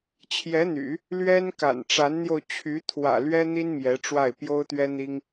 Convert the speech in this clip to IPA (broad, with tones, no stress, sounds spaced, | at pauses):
t͡ɕʰ j ɛ˧˥ n̪ y̰˨˩˦ | l ɥ ɛ˥ n k a̰˨˩ n ʈ͡ʂ a˧˥ n n̪ j o˧ ʊ̯ t͡ɕʰ y˧˥ t̪ʰ w ä̰˨˩ l ɥ ɛ˥ n̪ i˥ n m j ɛ˧˥ ʈ͡ʂ w a˥˩ ɪ̯ p j o˥ ʊ̯ t̪ ɥ ɛ˥ n̪ i˥ ŋ